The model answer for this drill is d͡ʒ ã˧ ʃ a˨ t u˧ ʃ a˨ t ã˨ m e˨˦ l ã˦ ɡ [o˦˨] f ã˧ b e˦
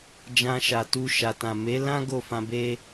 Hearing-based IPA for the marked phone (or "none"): o˦˨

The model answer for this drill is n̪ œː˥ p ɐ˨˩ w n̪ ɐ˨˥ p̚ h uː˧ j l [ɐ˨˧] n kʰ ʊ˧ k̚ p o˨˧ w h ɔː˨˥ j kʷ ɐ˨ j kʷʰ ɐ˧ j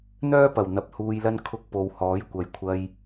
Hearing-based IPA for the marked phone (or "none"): ɐ˥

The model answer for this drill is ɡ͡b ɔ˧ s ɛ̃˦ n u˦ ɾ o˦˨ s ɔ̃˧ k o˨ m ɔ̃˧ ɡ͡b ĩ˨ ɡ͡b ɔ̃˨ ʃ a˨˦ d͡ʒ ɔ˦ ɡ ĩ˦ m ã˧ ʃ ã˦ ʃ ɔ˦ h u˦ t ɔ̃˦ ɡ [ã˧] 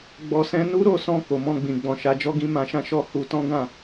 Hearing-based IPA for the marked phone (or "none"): ã˦˨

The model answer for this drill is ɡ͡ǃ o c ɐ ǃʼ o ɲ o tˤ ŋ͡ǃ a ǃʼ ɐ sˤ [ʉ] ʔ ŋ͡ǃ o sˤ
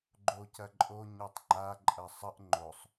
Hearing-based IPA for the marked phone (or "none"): ə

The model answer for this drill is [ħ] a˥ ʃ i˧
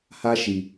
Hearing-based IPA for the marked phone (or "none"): h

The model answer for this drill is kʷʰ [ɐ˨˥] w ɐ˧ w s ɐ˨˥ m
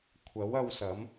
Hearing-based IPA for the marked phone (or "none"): ɐ˨˥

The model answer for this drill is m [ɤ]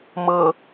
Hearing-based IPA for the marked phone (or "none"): ɤ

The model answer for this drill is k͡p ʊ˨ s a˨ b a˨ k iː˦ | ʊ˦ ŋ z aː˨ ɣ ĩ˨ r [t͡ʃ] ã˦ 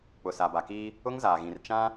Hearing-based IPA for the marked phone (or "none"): t͡ʃ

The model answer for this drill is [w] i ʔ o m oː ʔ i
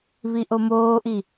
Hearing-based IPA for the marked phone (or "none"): β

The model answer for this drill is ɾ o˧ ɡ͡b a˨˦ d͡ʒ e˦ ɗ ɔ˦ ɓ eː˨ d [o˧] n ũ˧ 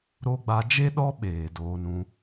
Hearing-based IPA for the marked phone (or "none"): oː˧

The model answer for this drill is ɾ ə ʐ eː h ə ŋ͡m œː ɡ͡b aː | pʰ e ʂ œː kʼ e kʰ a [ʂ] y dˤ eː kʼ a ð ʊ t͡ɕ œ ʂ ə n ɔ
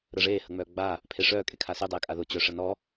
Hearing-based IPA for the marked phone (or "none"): s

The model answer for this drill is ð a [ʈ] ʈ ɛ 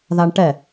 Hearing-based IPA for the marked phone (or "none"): ɳ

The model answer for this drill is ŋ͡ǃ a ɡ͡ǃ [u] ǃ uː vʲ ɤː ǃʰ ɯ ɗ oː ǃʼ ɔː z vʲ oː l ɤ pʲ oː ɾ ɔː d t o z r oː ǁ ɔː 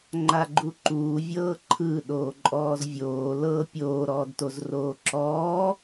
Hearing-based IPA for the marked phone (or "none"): u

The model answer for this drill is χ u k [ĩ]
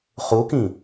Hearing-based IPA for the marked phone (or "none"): ĩ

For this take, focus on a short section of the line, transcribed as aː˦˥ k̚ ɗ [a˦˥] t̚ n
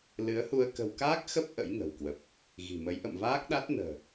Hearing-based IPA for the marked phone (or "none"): a˦˥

